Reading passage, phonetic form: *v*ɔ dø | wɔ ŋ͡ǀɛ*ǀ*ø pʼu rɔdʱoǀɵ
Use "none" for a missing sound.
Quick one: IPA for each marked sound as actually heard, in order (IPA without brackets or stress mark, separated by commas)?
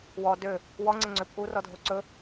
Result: w, ŋ͡ǀ